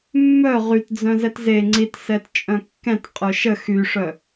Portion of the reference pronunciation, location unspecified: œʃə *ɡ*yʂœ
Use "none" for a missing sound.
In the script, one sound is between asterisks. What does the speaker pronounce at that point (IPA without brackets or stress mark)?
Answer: x